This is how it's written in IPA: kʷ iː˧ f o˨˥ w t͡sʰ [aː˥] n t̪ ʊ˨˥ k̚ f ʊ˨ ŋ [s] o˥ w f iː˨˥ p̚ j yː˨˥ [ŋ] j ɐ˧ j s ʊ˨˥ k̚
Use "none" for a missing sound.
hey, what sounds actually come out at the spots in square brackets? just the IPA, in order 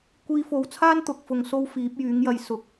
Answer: aː˥, s, ŋ

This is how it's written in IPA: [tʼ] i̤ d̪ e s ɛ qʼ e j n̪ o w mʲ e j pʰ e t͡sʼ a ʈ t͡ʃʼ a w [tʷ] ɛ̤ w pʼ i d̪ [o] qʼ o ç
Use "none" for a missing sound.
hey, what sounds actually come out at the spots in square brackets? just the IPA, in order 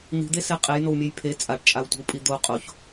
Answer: n̪, tʷ, o

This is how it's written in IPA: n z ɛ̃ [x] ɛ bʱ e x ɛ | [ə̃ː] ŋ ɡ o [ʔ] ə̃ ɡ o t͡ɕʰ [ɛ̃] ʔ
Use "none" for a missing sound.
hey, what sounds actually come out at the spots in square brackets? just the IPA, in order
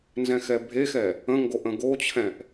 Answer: x, ə̃, ʔ, ɛ̃

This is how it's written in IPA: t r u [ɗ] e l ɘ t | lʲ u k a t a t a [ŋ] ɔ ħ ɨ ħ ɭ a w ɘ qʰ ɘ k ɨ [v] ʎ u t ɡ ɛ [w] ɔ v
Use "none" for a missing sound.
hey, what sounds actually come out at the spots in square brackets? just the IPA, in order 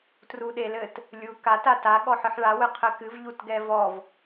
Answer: ɗ, ɠ, v, v

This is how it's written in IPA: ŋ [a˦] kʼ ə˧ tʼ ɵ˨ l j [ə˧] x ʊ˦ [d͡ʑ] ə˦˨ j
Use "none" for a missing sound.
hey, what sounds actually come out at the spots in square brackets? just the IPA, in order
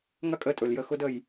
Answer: ɐ˦, ə˧, d

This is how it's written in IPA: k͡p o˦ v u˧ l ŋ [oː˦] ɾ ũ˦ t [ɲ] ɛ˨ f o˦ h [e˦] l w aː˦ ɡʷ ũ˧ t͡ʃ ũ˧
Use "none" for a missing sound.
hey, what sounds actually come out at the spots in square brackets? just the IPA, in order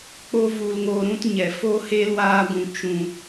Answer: oː˧, ɲ, e˦

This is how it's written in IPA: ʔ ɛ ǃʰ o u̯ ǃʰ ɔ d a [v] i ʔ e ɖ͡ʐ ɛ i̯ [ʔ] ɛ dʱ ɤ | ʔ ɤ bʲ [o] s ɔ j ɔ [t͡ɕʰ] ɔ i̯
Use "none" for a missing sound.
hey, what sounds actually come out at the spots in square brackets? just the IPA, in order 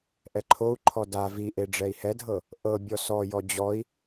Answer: v, h, ɔ, d͡ʑ

